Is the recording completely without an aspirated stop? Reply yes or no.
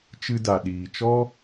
yes